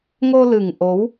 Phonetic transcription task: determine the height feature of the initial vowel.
mid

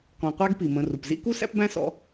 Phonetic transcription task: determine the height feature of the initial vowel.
mid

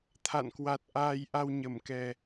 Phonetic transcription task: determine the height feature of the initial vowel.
low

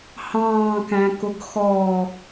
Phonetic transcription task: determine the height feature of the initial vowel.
low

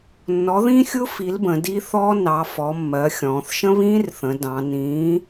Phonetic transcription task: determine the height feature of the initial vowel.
mid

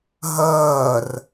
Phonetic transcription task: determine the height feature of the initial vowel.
mid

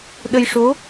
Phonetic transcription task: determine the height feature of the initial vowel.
mid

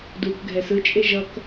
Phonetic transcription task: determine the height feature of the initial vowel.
high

